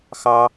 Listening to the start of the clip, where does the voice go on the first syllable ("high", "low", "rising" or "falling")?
low